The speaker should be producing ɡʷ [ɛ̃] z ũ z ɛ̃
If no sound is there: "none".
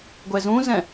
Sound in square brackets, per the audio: ɛ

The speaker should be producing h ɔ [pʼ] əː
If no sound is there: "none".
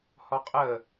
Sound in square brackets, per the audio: qʼ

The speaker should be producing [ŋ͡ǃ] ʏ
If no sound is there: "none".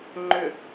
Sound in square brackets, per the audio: ŋ͡ǃ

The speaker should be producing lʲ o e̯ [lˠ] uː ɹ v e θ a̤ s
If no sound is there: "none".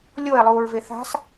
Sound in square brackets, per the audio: lˠ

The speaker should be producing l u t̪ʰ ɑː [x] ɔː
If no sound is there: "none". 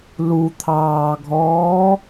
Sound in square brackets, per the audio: ɡʱ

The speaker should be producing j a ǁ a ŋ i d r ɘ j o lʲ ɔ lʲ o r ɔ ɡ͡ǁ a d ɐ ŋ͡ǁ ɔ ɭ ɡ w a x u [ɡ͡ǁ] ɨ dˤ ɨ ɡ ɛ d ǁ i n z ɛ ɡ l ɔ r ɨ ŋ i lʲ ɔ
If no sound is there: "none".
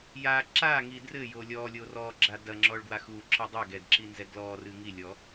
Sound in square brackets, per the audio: ǁ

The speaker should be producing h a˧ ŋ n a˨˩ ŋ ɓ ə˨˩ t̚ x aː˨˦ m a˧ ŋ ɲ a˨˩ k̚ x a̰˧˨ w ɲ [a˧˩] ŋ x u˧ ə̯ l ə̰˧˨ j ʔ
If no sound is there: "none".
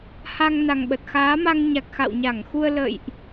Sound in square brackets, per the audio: a˧˩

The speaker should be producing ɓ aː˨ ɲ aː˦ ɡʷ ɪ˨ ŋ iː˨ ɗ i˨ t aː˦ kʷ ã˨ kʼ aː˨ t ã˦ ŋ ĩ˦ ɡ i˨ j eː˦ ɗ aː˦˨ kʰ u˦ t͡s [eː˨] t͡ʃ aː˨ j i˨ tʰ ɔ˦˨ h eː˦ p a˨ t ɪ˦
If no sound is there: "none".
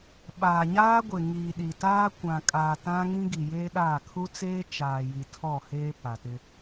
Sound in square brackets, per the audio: eː˦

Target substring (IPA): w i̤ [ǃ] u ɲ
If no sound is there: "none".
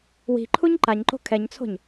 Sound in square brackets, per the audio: ǃʰ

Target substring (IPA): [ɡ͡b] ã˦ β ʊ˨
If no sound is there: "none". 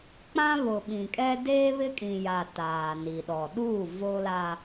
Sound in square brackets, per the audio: k͡p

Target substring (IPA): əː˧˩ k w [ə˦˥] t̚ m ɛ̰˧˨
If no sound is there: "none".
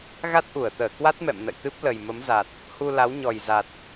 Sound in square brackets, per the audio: a˦˥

